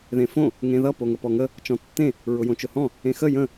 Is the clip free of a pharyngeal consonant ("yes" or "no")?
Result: yes